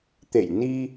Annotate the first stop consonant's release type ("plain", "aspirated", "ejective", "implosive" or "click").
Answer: plain